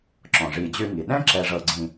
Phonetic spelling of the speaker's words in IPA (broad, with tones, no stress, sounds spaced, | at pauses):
ǁ ɔ̃˩ ʐ i˨ d͡ʑ ʉ˦ ŋ i˩ ɗ ɛ̃˥ ǁ ɛ˨ ʐ ɤ˨ ɡ͡ǀ ĩ˨